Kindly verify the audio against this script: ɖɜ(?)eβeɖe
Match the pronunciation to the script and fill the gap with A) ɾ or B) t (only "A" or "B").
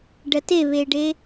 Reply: B